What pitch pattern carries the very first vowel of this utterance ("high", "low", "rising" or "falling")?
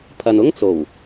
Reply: low